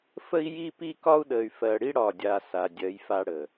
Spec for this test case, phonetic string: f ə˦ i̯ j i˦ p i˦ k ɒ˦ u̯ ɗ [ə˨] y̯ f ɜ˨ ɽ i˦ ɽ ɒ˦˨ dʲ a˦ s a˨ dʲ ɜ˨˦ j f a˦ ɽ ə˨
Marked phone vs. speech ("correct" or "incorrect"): correct